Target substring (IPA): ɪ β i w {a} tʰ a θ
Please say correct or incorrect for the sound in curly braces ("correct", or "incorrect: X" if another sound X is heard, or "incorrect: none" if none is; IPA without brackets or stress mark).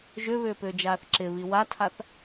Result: correct